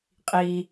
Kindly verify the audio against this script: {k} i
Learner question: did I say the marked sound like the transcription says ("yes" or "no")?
no